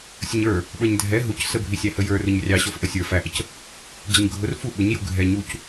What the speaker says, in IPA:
sʲəɲə˞ | ɓə˞ɲdʱɛ ɦuc səbʱisʲæhə jə˞ rʊɲrʲɑ ɕɔfʔəsʲə˞ fæʔəc | d͡ʑəɲɡʱʊr fu ɓʊɲju ɡʱɛ ɲuc

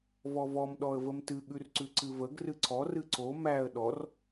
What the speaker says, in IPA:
vɔvɔm ɗɔə̯vəmtɨ ɠʉrǀʉǀɨvəɡ rɨǀʰɔ rɨǀo mæə̯ ɗɔr

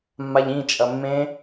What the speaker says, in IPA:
mːaʎĩ t͡ʃʼɐmːẽ

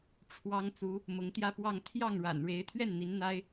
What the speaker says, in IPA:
ʈ͡ʂʰwɑ˥ŋ t͡su˧˥ | mʊ˧˥ŋt̪jä˥˧pwɑ˥˧ŋ t̪ʰjɑ˥˩ŋɻa̰˨˩n ɻe˧˥ɪ̯t̪ʰɥɛ˥˩n n̪i˧˥nn̪a˥ɪ̯

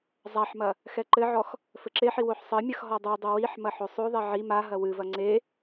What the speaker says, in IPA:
zˤaħmɐ | xɛǃɘʕɔx | fɘǁeħi woħsˤɘmʲɐx ɦɔdˤudˤɘ wiħ mɐħosˤoðˤɛ ʕi maɦɐ wɨvɐ ŋ͡ǀe

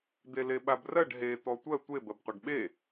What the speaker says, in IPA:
d̪eleɓabrɜɖ ɦe t̪ɔtʷɜ tʷe bɜbqʷaɖɓe

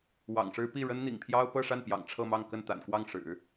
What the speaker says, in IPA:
wɑ̰˨˩ŋʂɻ̩˥ pi˥˩ ɻə˥nn̪ḭ˨˩ŋpʰjɑ˥ʊ̯ pɤ˥˧ʂa˥˩n pjɑ̰˨˩ŋʈ͡ʂʰɤ˥˧mɑ˥˧ŋkə˥˩n t̪a̰˨˩nkwɑ˥˩ŋ ʂɻ̩˨˩˦

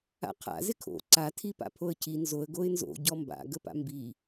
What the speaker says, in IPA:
a̰qʰa̰ zɪkʰo̰ ǀa tʰipa̰pʰoə̯cʰi nzoə̯ ɡoɪ̯nzo̰ ɟɔmba̰ ɡəpa̰mbi

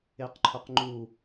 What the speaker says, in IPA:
eqǃʰʊqŋ͡ǃu

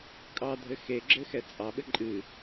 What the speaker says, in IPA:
kʼɑdʱɘ xeɡ͡ǁɘ xɛt͡sʼɑɓɘ ǃʼɨ

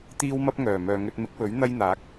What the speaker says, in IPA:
t̪iː˥wmɐ˥p̚ ŋœː˨˩mœː˨ ŋɵ˧t̚mɪ˨˥k̚wɵ˨˥ɥ n̪ɐ˥jn̪aː˨˥k̚

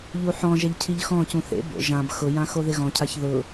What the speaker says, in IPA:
ʎuħɔ̃ʒɛʎ cʰiʎxɔ̃cũ θḛ bo̰ ʒãb xʊjã xoðɪɣɔ̃cʰaç ðʊ

